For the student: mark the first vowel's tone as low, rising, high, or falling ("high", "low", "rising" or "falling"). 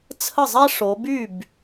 falling